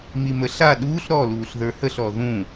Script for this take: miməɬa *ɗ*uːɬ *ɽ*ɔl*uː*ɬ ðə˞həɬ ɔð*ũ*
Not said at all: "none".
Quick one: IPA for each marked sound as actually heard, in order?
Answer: ɗ, ɾ, uː, ũ

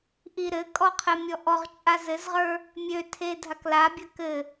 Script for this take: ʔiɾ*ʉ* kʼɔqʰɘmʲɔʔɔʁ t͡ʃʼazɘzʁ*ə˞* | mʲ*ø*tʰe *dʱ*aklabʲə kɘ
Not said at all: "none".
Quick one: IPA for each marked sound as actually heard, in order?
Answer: ɘ, ə˞, ø, dʱ

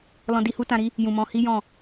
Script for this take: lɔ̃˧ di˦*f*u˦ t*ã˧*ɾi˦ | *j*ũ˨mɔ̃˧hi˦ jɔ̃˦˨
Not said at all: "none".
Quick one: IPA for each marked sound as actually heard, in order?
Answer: h, ã˧, j

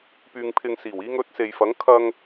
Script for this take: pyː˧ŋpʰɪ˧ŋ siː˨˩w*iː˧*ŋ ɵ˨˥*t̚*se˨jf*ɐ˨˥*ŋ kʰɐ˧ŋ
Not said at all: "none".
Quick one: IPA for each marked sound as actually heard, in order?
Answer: iː˧, t̚, ɐ˨˥

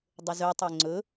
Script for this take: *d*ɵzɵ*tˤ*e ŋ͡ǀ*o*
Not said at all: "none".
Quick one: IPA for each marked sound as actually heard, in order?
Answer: dˤ, tˤ, ɵ

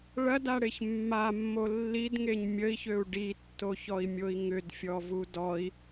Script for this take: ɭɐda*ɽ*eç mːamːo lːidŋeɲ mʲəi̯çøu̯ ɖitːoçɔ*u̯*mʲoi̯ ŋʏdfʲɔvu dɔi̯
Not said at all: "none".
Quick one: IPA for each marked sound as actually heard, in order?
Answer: ɽ, i̯

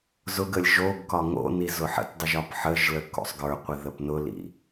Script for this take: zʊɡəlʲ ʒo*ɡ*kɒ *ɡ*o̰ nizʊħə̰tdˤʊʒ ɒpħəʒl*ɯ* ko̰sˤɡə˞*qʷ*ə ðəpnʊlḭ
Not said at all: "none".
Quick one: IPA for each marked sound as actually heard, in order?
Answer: ɡ, ŋ, ə, qʷ

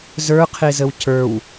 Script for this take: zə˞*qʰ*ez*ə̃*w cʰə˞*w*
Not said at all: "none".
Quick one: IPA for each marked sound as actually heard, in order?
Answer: qʰ, ə, w

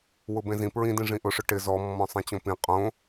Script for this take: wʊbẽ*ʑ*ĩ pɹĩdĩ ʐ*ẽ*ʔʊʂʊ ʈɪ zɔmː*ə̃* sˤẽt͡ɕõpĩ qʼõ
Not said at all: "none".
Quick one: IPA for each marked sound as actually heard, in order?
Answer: z, ĩ, ɔ̃

